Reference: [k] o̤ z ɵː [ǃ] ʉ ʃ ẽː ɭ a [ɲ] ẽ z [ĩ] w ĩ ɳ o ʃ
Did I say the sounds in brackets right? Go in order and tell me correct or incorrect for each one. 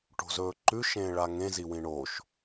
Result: incorrect, correct, incorrect, incorrect

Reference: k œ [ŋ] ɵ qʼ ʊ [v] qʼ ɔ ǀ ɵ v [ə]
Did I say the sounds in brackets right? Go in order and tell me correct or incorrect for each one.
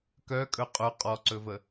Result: incorrect, incorrect, correct

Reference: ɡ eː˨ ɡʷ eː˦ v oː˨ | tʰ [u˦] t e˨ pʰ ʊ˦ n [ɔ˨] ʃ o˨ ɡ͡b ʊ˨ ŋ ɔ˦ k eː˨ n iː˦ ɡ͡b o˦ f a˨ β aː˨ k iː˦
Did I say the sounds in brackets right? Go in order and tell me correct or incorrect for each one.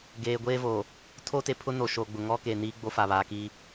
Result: incorrect, incorrect

